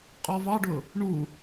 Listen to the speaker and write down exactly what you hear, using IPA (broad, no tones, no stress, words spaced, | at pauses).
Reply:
qʼɔvɑɖʊ | ɳu